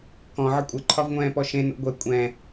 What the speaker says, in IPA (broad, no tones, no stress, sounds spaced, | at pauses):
k ɔ̃ ʕ ə kʷʼ ə ǃʰ ɒ v ŋʷ ɛ̃ː p ɔ ʃ ẽ n o̰ ɡʷ ɛ kʷʼ ɛ̃